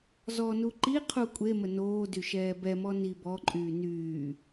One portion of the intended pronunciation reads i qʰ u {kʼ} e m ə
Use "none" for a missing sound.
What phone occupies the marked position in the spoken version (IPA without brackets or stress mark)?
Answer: kʷʼ